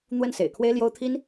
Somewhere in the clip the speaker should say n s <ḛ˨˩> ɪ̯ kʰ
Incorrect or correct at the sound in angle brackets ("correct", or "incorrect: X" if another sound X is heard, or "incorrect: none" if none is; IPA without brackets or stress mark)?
correct